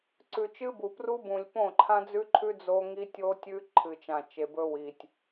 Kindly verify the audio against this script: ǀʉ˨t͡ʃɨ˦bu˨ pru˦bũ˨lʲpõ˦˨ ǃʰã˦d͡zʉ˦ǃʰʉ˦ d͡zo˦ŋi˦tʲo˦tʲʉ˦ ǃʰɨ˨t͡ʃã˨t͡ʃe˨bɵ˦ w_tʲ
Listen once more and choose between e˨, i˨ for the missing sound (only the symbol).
i˨